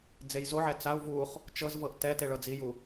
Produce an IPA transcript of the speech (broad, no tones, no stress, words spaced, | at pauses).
d͡zejzoʕɛ t͡sau̯ vuχ | t͡ʃɤzvɤʔ tɛ teɭɤd͡ziju